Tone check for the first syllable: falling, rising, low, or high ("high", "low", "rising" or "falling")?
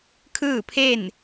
falling